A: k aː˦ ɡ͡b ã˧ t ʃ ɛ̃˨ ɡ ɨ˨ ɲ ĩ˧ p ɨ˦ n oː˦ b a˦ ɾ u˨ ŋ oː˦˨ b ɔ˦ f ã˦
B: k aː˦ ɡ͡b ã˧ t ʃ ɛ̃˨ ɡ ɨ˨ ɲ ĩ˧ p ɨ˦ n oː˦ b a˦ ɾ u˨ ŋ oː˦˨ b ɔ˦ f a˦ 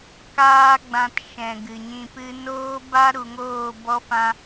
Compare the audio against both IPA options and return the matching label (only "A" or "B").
A